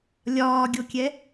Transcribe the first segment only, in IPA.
lʲ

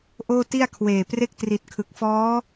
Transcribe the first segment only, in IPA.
ʔ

